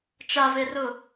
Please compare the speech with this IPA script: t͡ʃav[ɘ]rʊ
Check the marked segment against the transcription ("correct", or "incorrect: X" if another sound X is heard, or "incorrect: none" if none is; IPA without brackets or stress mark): incorrect: e